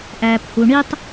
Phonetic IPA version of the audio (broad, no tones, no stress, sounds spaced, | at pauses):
ʔ æː p h u ɳ i tˤ